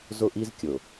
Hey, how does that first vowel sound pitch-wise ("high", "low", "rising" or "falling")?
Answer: high